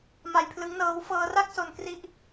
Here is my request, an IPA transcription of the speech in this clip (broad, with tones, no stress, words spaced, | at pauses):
ma˧jpʰlɯ˦˥ŋnɤː˦˥w fɤː˧ra˥˩k̚so˧nkri˦˥ʔ